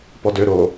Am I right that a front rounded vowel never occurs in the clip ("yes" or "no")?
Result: no